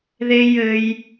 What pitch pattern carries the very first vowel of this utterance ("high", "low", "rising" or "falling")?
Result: high